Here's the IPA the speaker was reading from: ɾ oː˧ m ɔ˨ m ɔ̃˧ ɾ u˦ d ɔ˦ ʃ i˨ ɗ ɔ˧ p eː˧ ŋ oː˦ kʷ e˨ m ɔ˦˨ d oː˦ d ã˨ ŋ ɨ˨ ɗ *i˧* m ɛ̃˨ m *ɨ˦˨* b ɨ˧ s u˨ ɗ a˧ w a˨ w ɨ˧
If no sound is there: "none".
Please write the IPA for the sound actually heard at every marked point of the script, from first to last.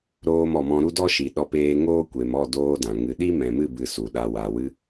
i˦, ɨ˦˨

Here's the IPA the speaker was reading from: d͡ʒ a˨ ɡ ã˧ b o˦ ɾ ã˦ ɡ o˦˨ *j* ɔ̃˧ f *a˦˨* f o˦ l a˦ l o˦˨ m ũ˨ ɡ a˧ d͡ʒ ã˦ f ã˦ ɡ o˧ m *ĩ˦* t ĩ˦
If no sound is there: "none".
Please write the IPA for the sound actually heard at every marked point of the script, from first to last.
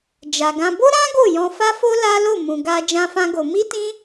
j, a˦, i˦

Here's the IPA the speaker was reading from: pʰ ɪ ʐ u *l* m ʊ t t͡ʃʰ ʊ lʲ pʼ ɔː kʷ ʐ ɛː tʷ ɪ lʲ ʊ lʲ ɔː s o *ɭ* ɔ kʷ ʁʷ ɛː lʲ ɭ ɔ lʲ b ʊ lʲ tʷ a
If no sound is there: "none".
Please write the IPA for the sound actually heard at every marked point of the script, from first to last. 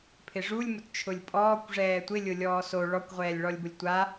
lʲ, ɭ

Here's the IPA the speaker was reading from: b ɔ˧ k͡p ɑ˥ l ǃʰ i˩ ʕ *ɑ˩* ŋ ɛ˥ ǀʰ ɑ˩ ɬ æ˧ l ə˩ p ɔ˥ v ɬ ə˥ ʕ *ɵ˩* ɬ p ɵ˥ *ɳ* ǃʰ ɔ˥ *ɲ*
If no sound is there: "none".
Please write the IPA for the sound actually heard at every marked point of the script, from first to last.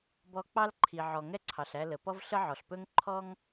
ɔ˩, ɔ˩, ŋ, ŋ

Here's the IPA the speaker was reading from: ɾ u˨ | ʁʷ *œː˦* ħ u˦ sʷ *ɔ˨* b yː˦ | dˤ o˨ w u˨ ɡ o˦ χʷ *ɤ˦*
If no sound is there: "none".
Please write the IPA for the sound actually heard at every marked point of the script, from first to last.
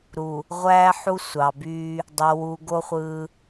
æː˦, ɑ˨, ɯ˦

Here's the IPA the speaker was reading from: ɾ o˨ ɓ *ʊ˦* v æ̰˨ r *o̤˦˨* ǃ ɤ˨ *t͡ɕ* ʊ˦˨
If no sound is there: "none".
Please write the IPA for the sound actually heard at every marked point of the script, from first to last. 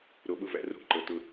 ʊ˦˨, o̤˦˨, t

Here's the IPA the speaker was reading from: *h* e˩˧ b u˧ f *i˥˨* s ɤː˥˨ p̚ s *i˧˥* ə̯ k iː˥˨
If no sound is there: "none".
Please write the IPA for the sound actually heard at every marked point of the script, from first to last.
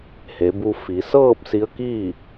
h, i˩˧, i˧˥

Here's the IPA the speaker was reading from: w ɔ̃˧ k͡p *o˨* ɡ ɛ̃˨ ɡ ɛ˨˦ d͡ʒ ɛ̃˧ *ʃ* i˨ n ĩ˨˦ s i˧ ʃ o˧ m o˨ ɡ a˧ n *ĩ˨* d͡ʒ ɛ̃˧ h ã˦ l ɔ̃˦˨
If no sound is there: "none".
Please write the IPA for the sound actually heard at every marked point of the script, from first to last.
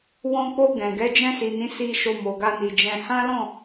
o˧, s, i˨

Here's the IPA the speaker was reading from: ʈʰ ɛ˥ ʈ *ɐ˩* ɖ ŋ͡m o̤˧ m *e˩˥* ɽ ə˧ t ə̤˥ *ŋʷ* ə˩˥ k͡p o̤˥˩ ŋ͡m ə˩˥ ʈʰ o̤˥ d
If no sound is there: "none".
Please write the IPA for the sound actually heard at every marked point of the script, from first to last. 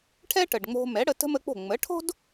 ə˩, ɛ˩˥, m

